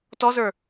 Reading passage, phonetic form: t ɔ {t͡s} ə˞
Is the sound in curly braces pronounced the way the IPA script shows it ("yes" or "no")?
no